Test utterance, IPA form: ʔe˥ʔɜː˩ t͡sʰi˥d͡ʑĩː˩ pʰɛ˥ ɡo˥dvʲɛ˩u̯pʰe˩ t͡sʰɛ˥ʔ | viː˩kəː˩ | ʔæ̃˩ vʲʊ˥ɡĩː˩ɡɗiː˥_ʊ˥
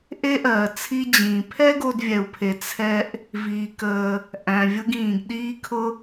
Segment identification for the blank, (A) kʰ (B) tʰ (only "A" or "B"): A